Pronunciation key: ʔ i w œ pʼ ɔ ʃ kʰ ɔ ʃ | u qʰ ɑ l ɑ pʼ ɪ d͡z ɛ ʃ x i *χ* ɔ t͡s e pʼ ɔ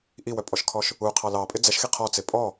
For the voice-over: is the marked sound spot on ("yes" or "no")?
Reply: no